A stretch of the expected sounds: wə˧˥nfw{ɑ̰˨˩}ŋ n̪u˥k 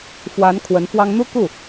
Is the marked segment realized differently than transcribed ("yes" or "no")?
yes